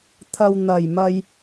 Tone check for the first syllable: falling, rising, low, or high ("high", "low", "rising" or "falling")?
low